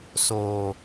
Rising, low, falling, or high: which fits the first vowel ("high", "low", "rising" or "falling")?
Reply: low